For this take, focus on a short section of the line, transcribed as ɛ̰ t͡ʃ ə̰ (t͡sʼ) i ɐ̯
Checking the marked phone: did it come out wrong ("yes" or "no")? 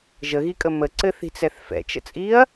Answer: no